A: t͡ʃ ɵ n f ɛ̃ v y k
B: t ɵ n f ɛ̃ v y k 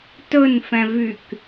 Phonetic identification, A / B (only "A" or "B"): B